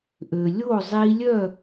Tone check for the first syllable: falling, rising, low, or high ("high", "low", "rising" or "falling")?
low